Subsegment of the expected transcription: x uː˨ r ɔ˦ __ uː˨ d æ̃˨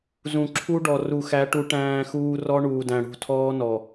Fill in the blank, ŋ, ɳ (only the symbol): ɳ